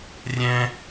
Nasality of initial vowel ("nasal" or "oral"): nasal